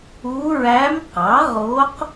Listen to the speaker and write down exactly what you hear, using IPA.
u˧˥ ɹ æ˧˥ m q ɑ˩˥ ʁ o˧˥ q

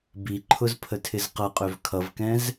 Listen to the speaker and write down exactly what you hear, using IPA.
b i ǃʰ ʊ z pʰ ə tʰ ɪ z q ʌ qʼ ø v kʰ ʌ v k ɛ̃ z

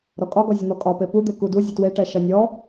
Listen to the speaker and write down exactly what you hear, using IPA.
ɾ ɔ kʼ ɒ ɡ ɔ zʲ ə n̪ ɔ kʼ ɒ p e p u d̪ e k u d u zʲ ə t w e ʈ ɛ ʃ ɐ nʲ ɔ

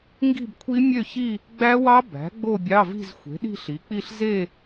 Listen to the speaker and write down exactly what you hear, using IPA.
ŋ ɡ i̤˥˧ b kʷʰ i˦˥ mʲ ø˥˧ ç i˥˧ | ɡ͡b æ˦˥ w ɑ˦˥ b æ̤˩˥ ɡ͡b o˥˧ bʲ ɑ˧˥˧ v i̤˥˧ z xʷ e̤˩˥ ɗ i̤˥˧ ɬ i˩˥ k͡p i˥˧ ɬ z e˥˧

